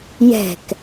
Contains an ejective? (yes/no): no